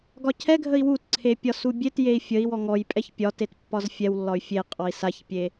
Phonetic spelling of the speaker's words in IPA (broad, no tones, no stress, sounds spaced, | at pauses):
ɡ ɒ cʰ ɛ ɡʱ ə i̯ w u t ǀʰ e pʲ ɒ s u bʲ e t j e i̯ fʲ ə i̯ w ɔ ŋ ɔ j pʼ ɛ ç pʲ ɒ t e t pː ɒ z fʲ ɛ w lː ɒ y̯ fʲ e qʼ ɔ i̯ s a ç pʲ e